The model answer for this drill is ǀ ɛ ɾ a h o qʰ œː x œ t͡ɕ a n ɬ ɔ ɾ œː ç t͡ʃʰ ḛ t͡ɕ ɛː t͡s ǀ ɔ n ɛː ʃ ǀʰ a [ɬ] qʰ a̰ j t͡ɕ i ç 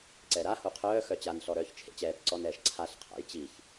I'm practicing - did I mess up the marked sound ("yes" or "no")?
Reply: no